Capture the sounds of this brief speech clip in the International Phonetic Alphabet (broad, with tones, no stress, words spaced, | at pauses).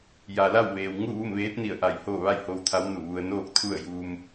ja˩la˥˨wʋeː˩w ŋu˥˨ʋu˥˨mʋeː˧˥t̚ni˧˩ə̯ ʔa˧˩j hoː˥˨ ʋa˥˨jho˧w t̪ʰa˧˥wnu˧˩ʋu˧ə̯ noː˥˨k̚t̪ʰu˥˨ə̯juː˧m